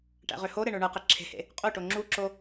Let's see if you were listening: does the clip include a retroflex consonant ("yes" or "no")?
yes